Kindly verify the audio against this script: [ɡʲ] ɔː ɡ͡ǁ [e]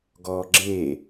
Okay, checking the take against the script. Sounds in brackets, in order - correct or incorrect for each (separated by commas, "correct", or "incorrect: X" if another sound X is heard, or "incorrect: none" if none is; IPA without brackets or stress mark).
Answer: incorrect: ɡ, correct